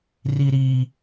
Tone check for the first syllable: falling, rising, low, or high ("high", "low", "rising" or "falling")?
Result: low